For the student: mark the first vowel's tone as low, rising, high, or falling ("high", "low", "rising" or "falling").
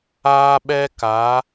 high